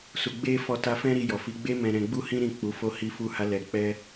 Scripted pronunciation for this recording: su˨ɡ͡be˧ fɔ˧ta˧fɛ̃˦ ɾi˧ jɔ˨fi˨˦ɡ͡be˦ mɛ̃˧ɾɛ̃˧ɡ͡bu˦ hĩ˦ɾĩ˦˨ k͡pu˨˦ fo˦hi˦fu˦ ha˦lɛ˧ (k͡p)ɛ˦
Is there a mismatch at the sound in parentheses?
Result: no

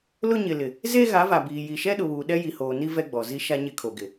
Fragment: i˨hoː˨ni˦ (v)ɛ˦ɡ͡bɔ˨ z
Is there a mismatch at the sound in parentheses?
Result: no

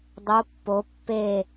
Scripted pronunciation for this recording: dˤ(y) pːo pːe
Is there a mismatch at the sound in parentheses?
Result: yes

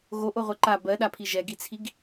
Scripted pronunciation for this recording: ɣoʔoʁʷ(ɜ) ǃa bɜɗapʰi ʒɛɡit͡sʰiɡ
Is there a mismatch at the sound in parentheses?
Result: yes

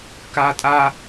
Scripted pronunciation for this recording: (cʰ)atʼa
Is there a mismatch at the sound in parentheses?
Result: yes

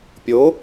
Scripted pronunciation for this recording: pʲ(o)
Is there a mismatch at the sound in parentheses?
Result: no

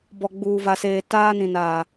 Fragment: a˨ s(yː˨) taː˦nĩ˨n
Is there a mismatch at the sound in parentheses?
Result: yes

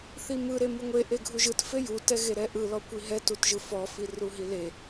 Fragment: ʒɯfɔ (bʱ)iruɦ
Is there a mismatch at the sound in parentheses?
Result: yes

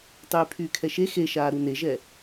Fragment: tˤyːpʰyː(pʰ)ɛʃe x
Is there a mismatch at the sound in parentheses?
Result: yes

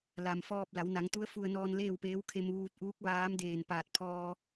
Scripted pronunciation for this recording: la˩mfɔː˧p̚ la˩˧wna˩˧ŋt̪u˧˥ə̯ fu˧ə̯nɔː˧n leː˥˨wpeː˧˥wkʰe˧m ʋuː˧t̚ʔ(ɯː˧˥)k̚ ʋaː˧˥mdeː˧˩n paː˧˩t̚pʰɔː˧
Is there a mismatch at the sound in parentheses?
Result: yes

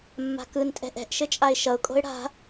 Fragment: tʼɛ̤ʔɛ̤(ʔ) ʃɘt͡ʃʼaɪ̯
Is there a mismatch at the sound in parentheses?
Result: no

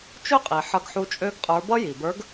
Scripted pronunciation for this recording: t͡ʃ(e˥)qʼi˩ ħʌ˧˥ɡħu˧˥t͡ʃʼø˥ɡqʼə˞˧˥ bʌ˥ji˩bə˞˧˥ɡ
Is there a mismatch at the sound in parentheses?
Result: yes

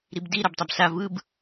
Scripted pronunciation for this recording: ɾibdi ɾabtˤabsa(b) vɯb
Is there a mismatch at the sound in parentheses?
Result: yes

